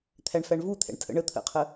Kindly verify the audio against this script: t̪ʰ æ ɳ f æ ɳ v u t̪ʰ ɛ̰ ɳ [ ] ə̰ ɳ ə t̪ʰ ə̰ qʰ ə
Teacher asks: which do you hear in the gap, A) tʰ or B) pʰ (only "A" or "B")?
A